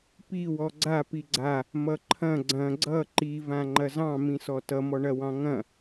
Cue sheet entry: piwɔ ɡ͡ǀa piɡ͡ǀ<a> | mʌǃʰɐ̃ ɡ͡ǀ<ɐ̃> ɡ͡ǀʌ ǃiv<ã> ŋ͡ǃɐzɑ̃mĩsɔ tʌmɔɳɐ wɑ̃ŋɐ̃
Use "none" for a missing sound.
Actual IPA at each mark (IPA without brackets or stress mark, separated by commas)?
a, ɐ̃, ã